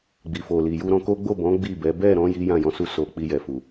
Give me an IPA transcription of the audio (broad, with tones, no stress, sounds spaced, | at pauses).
ɡ͡b i˨ f o˨ l i˨ j u˧ ɾ ɔ̃˧ k o˦ ɡ͡b o˦˨ b ɔ̃˨˦ ɡ͡b i˦˨ b ɛ˨˦ b ɛ˦˨ ɾ ɔ̃˧ j i˦ j ã˦˨ j ɔ̃˧ s u˧ s o˨ k͡p i˧ j ɛ˨ f u˨